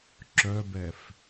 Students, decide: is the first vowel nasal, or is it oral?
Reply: oral